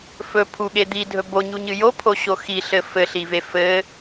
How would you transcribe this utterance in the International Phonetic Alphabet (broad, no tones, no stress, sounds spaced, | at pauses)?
f ɵ pʰ u ɠ e d̪ i dʱ ɵ b o ɲ u ɲ ɨ j o pʰ o ɕ o x i ɬ ɘ f ɘ ɬ i v e f ɘ